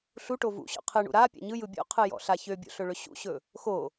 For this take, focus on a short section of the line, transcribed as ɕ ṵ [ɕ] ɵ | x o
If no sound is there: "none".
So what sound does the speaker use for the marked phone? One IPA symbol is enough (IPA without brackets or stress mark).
ɕ